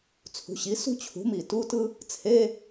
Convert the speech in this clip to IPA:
t͡sʰ ṳ˩˥ ɕ i˩˥ s ṳ˥ t͡ɕʰ ṳ˩˥ m i˩ t u˧˥˧ t ɯ˥ | t͡sʰ e˧˥˧

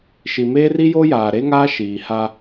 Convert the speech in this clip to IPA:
ʃ i˨ m eː˦ r i˦ j o˦ j aː˨ ɾ e˦ ŋ aː˦ ʃ iː˨ h a˦

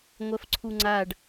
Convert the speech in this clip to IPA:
ŋʷ ɜ f ǀʰ u ŋ͡ǀ a ɖ

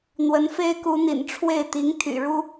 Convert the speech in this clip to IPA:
n̪ w ə˧˥ n f e˥ ɪ̯ k u˧˥ n̪ ḭ˨˩ n ʈ͡ʂʰ w e˥˩ ɪ̯ t̪ i˧˥ ŋ t̪ʰ y̰˨˩ ɻ u˥

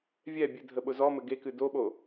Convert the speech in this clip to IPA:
vʲ ɛ bʲ ɨ dʱ ə ɓ ʊ z ɔ m ɘ ɡ e k ɨ d o ɓ o

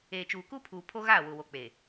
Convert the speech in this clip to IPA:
eː˨ t͡ʃ uː˨ k u˦ pʰ uː˨ pʰ o˦ ɣ aː˦˨ w ʊ˨ w o˨ k͡p e˨

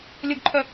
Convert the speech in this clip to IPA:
lʲ ʊ ɡ ǃʰ œ

